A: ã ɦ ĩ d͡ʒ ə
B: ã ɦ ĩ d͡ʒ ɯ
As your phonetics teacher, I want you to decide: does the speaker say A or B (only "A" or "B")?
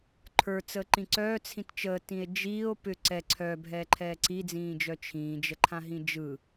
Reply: B